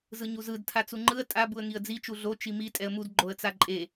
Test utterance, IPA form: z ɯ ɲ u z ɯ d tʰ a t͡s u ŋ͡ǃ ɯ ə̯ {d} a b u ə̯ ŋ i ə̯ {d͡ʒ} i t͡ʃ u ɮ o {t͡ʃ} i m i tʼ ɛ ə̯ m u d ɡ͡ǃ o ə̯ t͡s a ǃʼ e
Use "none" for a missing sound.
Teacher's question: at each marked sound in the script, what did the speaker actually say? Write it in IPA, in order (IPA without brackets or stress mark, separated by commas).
tʼ, d͡z, t͡ʃ